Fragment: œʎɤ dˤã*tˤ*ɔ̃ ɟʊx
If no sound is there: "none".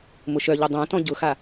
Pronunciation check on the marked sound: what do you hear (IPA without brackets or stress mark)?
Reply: t